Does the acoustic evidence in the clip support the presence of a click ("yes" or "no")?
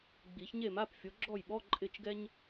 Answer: yes